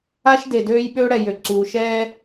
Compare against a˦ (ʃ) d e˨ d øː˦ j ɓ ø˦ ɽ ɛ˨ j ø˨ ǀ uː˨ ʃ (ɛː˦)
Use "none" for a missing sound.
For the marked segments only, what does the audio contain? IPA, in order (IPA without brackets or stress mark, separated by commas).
ʃ, ɛː˦